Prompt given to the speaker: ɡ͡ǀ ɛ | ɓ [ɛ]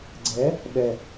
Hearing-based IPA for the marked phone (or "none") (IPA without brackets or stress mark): ɛ